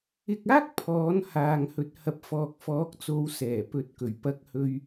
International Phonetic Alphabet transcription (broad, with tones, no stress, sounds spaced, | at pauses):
ɪ˧ k̚ aː˥ k̚ pʰ ɔː˨˥ n h aː˨ ŋ h ɵ˨˥ t̚ h ɐ˨ p̚ f ɔː˨ k̚ f ɔː˨˥ k̚ t͡s o˨˧ w s ɛː˨˩ p ɵ˨ t̚ k ɵ˨˩ ɥ p ɐ˧ k̚ h ɵ˧ ɥ